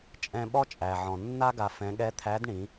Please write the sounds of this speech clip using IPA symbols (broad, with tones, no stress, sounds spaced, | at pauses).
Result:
t͡ʃʼ ɛ̃˧ ɓ ɔ˥ t͡ʃʼ æ˩ ʕ ɔ̃˩ nː a˥ ɡ a˧ f ɛ̃˧˥ ɠ ɛ˧˥ t̪ʰ æ˧˥ d ɳ ĩ˩˧